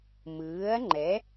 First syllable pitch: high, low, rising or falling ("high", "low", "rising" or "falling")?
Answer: rising